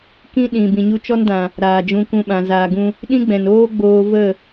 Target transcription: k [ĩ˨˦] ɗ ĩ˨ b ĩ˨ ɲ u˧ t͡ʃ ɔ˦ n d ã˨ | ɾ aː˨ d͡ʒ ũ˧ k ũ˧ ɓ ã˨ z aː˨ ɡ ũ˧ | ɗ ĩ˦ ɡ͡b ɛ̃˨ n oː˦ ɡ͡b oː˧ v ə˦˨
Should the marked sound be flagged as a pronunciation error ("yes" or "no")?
yes